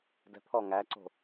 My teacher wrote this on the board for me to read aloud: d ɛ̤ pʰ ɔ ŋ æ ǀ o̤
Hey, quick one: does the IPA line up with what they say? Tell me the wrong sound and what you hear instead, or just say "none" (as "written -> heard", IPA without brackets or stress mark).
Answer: none